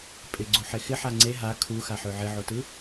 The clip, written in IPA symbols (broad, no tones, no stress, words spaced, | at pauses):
pʼɪɡ͡ǀuħe xɪħa ŋ͡ǀe ɦa kʰuxaħø ʕɪʕotɯ